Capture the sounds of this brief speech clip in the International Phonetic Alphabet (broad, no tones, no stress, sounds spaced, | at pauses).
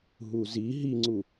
ɦ u z i ɦ i ŋ͡ǀ u